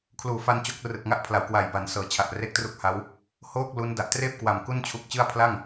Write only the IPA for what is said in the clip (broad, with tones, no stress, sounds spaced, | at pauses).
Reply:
kʰ l uː˨˩ f a˧ n t͡ɕ o˦˥ k̚ r ɯ˨˩ k̚ ŋ a˥˩ ʔ pʰ l a˩˦ w k w a˨˩ j b a˩˦ n s ɤː˩˦ t͡ɕʰ a˨˩ ʔ r e˦˥ k̚ t r u˦˥ k̚ h a˦˥ w | h oː˥˩ k̚ l u˦˥ n d a˨˩ ʔ t r eː˥˩ p̚ k w a˨˩ m k u˥˩ n t͡ɕʰ u˦˥ k̚ t͡ɕ ɯ˥˩ a̯ pʰ l a˥˩ ŋ